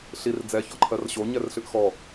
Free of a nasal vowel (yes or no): yes